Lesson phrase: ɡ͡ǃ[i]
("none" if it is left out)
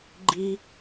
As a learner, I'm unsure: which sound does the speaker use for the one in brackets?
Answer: i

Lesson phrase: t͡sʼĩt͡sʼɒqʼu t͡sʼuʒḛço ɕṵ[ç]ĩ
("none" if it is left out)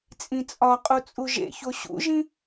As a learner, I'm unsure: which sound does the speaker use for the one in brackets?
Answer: ʒ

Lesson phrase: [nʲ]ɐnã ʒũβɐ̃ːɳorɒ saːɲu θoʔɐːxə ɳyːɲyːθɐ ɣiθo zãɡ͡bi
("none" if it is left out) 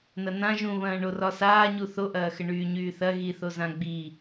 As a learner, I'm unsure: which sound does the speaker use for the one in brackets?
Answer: n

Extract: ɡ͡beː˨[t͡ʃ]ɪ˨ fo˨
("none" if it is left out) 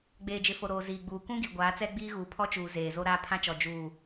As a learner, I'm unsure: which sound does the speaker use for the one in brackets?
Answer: d͡ʒ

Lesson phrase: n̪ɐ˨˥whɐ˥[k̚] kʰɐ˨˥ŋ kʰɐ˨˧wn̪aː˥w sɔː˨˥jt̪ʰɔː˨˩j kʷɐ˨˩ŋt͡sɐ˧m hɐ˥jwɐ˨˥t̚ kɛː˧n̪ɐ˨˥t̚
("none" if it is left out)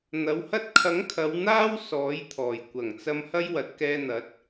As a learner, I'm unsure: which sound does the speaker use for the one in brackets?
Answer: t̚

